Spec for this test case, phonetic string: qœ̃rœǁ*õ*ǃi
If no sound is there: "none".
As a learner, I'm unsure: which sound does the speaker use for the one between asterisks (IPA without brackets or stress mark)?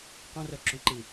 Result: õ